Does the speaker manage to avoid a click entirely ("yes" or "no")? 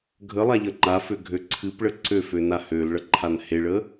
no